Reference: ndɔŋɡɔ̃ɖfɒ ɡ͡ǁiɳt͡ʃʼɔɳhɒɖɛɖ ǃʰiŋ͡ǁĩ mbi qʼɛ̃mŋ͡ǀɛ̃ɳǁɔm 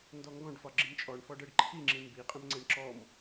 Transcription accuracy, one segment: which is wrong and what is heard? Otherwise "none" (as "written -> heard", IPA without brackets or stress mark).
h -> f